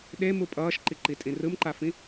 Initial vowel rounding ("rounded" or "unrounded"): unrounded